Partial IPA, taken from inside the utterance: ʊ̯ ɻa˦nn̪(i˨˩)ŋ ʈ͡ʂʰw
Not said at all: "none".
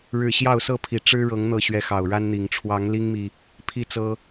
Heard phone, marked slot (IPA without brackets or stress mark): i˨˩